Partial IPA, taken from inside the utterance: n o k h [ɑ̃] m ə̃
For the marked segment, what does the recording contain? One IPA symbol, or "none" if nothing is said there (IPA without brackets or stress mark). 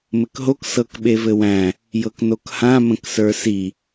ã